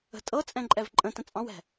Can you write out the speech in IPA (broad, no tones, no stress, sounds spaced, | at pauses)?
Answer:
ə̤ tʼ ɤ t͡sʼ ɛ̃ ǃʼ ɛ v ǃʼ ə̃ t ə̃ t͡sʼ ɑ̃ w ɛ̤